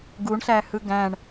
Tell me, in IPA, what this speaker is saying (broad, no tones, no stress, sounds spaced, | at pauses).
ɡ u ɳ ɬ æ h ɯ ɡ æ̃ ɳ